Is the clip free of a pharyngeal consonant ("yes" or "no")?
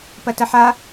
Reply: no